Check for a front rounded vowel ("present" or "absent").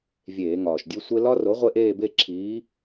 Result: absent